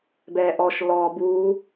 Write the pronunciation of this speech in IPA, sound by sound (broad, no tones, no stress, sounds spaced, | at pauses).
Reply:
b ɛː ʔ ɔ ʃ l ɔː b uː